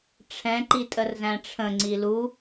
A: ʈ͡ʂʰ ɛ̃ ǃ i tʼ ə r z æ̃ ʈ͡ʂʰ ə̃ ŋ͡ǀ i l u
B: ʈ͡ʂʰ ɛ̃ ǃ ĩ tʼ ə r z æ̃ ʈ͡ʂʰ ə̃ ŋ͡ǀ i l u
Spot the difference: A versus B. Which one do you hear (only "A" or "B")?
A